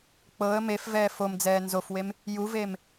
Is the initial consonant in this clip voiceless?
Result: yes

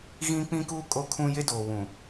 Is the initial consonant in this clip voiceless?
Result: no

